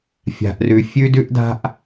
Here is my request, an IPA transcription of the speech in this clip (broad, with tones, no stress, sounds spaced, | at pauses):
fʲ a̤˨ ʔ r ʉ˨ fʲ ʉ˦ d ʉ˦ ʔ d a̤˦ ʔ